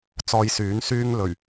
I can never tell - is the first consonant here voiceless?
yes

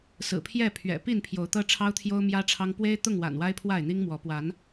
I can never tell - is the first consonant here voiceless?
yes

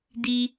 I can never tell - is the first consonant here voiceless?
no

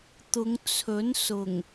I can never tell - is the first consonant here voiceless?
yes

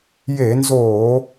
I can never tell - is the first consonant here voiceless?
no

